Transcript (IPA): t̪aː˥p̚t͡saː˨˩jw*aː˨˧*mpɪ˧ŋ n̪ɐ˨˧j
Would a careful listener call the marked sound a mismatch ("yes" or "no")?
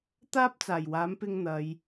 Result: yes